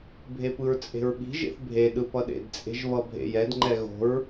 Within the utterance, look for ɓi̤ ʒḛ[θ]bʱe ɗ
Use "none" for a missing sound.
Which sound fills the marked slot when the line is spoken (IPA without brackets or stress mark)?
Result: θ